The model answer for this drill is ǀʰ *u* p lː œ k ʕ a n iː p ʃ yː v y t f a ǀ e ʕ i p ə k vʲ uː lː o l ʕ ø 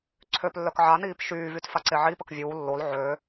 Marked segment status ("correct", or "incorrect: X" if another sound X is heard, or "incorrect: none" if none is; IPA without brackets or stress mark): incorrect: ø